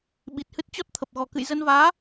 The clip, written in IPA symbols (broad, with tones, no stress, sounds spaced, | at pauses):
ɓ i˨˩ t̚ h ɨ˦˥ t̚ t͡ɕ ɔ˦˥ t̚ t̪ʰ ə˨˩ p̚ ɣ ɔ˨˩ k ɨ̰˧˨ j z ə˧ n v aː˨˦